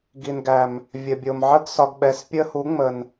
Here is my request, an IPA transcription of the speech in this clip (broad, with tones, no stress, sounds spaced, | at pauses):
ɡ i˨ n ɡ æ˨ m | vʲ ə˨ bʲ o˨ m ʕ ə˦ ɡ s ɒ˧ ɡ ɓ ɛ˨˦ s pʲ ə˦ h u˨˦ ŋ͡m ə˨ n